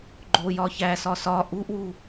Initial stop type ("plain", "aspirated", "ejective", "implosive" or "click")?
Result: click